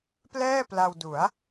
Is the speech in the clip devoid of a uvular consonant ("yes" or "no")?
yes